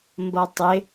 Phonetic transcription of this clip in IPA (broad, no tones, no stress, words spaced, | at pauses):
mbʌtˤɪ